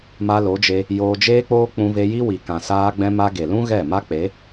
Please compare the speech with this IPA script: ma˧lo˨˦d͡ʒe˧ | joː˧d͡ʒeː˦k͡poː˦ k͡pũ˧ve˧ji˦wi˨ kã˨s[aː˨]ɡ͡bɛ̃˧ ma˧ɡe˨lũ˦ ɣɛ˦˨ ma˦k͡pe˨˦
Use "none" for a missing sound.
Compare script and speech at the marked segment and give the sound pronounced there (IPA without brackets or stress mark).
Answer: aː˧